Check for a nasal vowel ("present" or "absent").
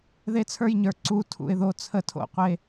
absent